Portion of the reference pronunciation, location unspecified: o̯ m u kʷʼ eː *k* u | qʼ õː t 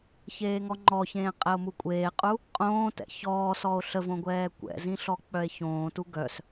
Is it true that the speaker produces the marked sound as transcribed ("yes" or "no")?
no